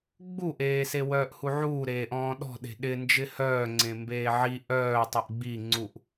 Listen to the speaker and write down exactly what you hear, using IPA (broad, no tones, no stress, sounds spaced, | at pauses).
ɡ͡b u ʔ eː s e w œː ʔ h u ʕ uː ɾ eː ʔ ɔ̃ː ɗ ɔ̤ ɗ e̤ ɗ ɪ n d͡ʒ ɪ h œː ŋ͡ǀ ẽ m b eː ʕ i ʔ œː tˤ u ʔ ɡ͡b i ŋ͡ǀ u ʔ